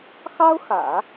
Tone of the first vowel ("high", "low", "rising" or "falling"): high